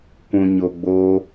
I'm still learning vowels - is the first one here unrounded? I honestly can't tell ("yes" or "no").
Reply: no